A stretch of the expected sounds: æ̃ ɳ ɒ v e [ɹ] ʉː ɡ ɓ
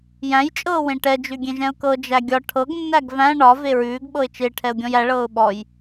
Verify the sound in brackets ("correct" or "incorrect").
correct